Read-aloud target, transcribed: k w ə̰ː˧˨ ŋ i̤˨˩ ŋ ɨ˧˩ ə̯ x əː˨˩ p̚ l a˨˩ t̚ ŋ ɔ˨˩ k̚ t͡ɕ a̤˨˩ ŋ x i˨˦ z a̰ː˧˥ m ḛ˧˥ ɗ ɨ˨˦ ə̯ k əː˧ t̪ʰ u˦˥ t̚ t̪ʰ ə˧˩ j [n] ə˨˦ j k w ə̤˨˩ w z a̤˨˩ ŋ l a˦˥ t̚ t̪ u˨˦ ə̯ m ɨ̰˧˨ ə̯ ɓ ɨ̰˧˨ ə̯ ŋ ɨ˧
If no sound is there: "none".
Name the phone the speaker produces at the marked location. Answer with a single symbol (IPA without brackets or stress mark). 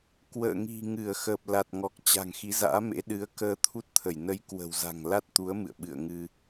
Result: n